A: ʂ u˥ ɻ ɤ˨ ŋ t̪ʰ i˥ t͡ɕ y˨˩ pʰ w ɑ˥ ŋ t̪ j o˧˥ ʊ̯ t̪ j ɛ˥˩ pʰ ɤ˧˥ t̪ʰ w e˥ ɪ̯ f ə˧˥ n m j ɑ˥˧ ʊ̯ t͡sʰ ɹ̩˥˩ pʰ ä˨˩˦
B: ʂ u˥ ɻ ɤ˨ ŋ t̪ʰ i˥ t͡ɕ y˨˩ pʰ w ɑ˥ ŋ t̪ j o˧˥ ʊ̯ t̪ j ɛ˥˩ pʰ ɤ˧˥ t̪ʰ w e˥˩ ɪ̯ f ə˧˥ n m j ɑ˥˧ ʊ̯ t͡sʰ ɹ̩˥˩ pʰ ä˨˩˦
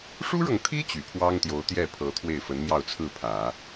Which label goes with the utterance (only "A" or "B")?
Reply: B